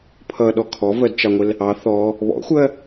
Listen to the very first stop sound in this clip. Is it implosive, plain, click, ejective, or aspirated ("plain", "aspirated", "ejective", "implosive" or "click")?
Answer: aspirated